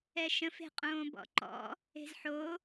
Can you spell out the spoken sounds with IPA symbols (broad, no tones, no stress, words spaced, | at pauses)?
ɛʃə̃f e̤qʼõːbɔ̰ǃɔ̰ | e̤zħo